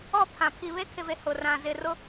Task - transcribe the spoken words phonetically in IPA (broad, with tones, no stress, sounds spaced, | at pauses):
ɔ˦˨ pʰ ã˨ pʰ i˨ β e˦ kʰ ɪ˨ v e˨ h ʊ˨ r ã˨ z ɪ˨ r ʊ˦